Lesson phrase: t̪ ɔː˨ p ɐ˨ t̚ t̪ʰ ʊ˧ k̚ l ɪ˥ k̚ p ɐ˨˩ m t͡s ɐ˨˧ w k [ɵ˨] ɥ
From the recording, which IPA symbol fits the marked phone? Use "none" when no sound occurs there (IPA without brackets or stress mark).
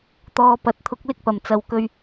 ɵ˧